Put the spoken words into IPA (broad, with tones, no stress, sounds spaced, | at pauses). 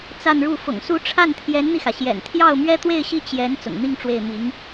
t͡s a˥˧ n ɻ u˥˩ f ʊ̰˨˩ ŋ s u˧˥ ʈ͡ʂʰ a˥˩ n t̪ʰ j ɛ˧˥ n n̪ i˧ x ä˩ ɕ j ɛ̰˨˩ n t̪ʰ j ɑ˥˩ ʊ̯ m ɥ ɛ˥ t̪ w e˥˧ ɪ̯ ɕ i˥˩ t͡ɕ j ɛ˧˥ n t͡s ʊ̰˨˩ ŋ n̪ i˥˧ ŋ ʈ͡ʂ w e˥˩ ɪ̯ m i˧˥ ŋ